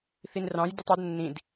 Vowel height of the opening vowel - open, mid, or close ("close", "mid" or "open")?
close